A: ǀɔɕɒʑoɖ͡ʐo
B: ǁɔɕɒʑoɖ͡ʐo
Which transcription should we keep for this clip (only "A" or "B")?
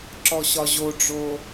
B